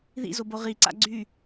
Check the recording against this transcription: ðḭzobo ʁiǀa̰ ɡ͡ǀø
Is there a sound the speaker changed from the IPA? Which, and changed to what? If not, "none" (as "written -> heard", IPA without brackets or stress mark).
ø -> y